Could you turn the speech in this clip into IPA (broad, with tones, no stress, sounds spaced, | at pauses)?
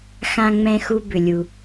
x ã˥ ŋ͡m ɛ̃˥ x u˥ b ʏ˧ lʲ u˧